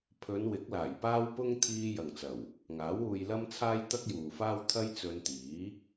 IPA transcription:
pʰɵ˨˧n wɪ˨˥k̚laː˨˩jpaː˥wpʊ˥ŋ t̪ʰiː˥jɐ˨ŋt͡sɐ˨˩w | ŋaː˨˥wuː˧jlɐ˥mt͡sʰaː˥j t̪ɐ˥k̚juː˨faː˥w t̪ʰɐ˥jt͡sɵ˧nt̪iː˨˥

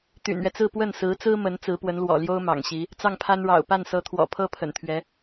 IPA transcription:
t̪y̰˨˩nɥɛ˦t͡sɹ̩˥˧ pwə˥˩nsɹ̩˧˥t͡sɹ̩˥mə˧˥n t͡sɹ̩˧˥pwə˧˥nlwɔ̰˨˩ljo˥ʊ̯ mɑ̰˨˩ŋɕi˧˥ | t͡sɑ˥˩ŋpʰa˥nɻɑ̰˨˩ʊ̯ pa˥˩nsɤ˧˥ t̪ʰwɔ̰˨˩pʰɤ˥pʰə̰˨˩nt̪ʰɥɛ˧˥

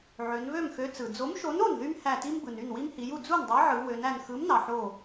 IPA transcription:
ʕø˩˧nβø˥˩mxø˨˥ t͡sɯ˩d͡zo˨˥mʃo˨˥n o˥˩nðy˦m hæ˧˩ti˦m bɯ˩ny˥˩n wi˦mhi˩˧ju˥˩ d͡zu˥˩ndˤe˨˥ʕɯ˩˧ wø˩˧næ˧˩n xɯ˨˥mnɑ˩ħo˧˩

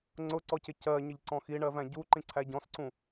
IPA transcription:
ŋ͡ǀʊǀɔcɪ cɜɲəʎǀɔ̃ xiɳɜvæ̃ ɟuǃĩǀʰæ ɟɔ̃sǀũ

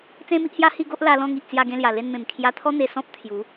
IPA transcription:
t͡sẽ˦mi˦ʔhja˦ hi˥˧ɡo˦ʔla˧ lɔ̃˥˧ŋi˨ʔ t͡sja˧ɡẽ˧lja˨˩ le˧nmẽ˨˩mkʰja˧t̪ʰɔ˦ n̪e˧ sɔ̃˦p̚t̪ʰju˨˦

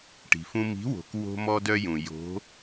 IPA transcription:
ʈi̤˩fũ˧ mi̤˨˥wo̤˩k wo̤˧mɔ˧dœ˧jũ˩ jo̤˨˥

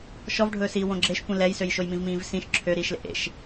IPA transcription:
ʃɔvɖʱɵːsiː wõɡ͡ǁeʃkʷĩ lɛjsøjʃoj mĩvmĩːvsĩʃ ǁʰø ɾiːʃlḛʔḛʃ

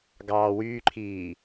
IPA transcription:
ɡɑːwyːǃʰiː

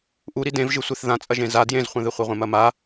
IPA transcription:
ʔuɾi dẽvʒɨsʷeθ ðãt͡sʼɐʒẽ za djẽzχʷɐ̃ðɨ χʷɐʁʷẽmɐma

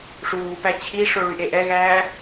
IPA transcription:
ʂuːpæ t͡ɕʰiʂo ɭyʔeʔɛɣæː

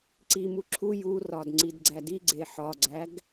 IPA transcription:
ǀimu ǁʰu jurɒd ŋ͡ǀidɡ͡ǀædiɡ͡ǀe ħɒɡ͡ǀæɡ

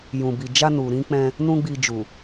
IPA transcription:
jũ˨bi˨ d͡ʒa˧nu˨ ɾĩ˧ k͡pɛ̃˧ | nũ˦ɡ͡bi˧ d͡ʒu˨

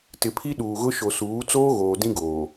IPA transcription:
tɪ˨pʰi˦ ɗuː˨ɣʊ˦ ʃo˨suː˨˦ t͡soː˦ɣoː˨ dĩ˦ɡoː˨

